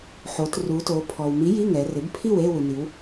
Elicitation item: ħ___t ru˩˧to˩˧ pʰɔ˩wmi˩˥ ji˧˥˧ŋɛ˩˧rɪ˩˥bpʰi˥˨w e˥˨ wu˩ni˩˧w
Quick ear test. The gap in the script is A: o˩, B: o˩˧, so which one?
B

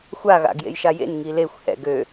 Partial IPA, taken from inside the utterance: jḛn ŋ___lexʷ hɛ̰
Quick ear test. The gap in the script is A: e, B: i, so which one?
B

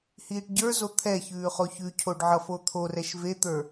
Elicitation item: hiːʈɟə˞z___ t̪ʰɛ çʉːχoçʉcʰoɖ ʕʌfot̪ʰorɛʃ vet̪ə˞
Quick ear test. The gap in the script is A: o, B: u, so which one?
A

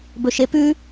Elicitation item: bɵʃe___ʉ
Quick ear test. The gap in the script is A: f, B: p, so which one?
B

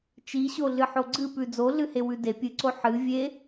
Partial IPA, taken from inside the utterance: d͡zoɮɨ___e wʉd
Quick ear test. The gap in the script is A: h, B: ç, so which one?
A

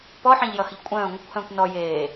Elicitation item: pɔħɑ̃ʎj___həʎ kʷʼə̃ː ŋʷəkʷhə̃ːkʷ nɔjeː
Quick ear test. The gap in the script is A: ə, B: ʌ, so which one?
B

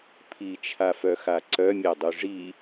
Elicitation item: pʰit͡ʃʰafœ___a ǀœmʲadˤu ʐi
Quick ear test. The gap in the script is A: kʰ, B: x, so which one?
B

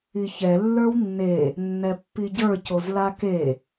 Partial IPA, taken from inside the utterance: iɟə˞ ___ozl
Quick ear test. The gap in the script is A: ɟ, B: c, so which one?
B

